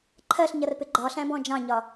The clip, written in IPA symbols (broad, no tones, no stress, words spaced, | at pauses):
ǃʰɜɬɲʌrpɪ ɡ͡ǃɒɬæ̃bɔ̃ d͡ʒɑ̃ɲɒ